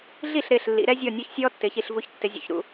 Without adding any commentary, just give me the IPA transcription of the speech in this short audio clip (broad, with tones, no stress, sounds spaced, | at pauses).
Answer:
ɮ i˥˩ ɬ ɾ ɪː˧˩ ɬ lː ḭ˩˧ ɾ ɛ˦ zʲ ɔ˧˩ nʲ ʊː˦ ç sʲ ɔː˦ tː ɪː˩˧ ç i˥˩ ɬ v u˩˥ ç tː ɪ˩˧ zʲ ṵ˩˧ ç ɾ ṵ˥˩